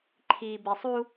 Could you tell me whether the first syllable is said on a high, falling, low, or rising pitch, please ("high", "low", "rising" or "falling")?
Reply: low